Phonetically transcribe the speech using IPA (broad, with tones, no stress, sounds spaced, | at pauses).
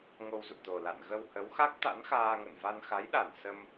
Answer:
ŋ o˧ w z ṵ˧˨ t̪ o˨˩ l a̰˧˨ n ɣ ə˧ w h ə˨˦ w x a˦˥ k̚ t̪ a̰˧˥ n x aː˧ ŋ ə̰˧˨ n v a˧ n x a˨˦ j ɗ a˧˩ n s ə˧ m